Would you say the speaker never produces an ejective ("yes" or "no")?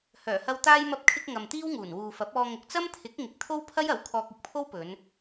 yes